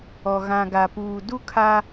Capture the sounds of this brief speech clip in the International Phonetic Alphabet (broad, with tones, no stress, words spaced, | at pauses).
ɔ˨ ɣã˨ɡa˨puː˨du˦ kʰa˦